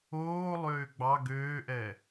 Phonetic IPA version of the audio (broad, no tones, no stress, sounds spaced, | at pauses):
oː lˠ øː ɡ͡b ɑ ɡ øː ʔ ɛ